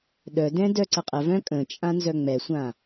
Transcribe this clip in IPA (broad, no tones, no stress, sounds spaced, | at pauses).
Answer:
ɗ œ d ɛ̃ d œ ǀ ə qʼ ə v œ̃ kʼ ə̃ t͡ʃʼ ã n z œ ŋ͡m ɛ sʷ ã